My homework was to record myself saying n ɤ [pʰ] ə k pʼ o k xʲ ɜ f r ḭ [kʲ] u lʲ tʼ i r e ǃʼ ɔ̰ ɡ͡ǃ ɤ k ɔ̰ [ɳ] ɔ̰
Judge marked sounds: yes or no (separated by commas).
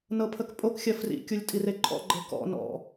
yes, yes, no